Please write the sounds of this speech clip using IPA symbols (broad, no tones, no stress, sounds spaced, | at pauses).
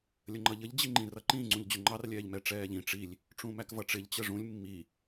lʲ ə ŋ͡ǃ ʌ ʎ ə ʎ d͡ʑ i ŋ͡ǃ ĩ r ʌ ǃ ĩ ŋ͡ǀ ũ ʎ d͡ʑ ʊ ŋ͡ǃ ɑ r lʲ ɛː ʎ m ɛ ʈ͡ʂ ɛː ʎ ĩ ʈ͡ʂ i lʲ | ʈ͡ʂ ũ m æ k v ʌ ʈ͡ʂ ɪ ʎ t͡ɕ ə ʐ ũ lʲ mː i